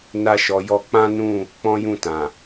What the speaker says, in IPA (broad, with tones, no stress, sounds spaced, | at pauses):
n a˧ ʃ ɔ˨ j ɔ˧ k͡p ã˦ n ũ˦˨ | k͡p ɔ̃˦ j ũ˦˨ t ã˨